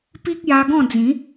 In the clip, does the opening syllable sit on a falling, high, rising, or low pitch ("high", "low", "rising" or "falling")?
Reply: high